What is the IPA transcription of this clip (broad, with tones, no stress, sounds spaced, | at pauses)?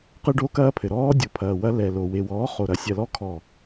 q ɨ˦ ɖ o˦ k ɐː˦ pʰ ɘ˨ ɾ ɔː˦ dʲ o˨ pʰ ɐː˨ w ɐ˦ l ɛ˨ l o˨ w e˨ w ɔː˨˦ χ o˨ ɾ ɐ˨ sʲ ɐ˨ l ɔ˦ kʰ ɔ˨